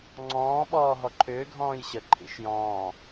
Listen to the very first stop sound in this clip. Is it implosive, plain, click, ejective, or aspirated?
click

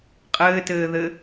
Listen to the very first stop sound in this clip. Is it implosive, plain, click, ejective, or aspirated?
ejective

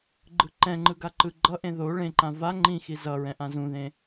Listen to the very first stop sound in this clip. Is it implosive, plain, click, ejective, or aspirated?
click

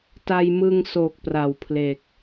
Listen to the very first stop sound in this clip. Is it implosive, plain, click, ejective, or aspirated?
plain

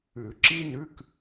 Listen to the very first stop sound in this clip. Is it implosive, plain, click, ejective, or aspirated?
click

